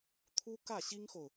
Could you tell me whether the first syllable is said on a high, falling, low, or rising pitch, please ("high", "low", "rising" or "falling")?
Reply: high